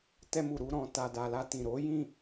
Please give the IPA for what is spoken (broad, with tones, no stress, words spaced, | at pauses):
tɛ˧mu˨ɾu˧ ɾɔ̃˨ ta˨da˨la˧ tĩ˨ ɾo˨˦jĩ˦˨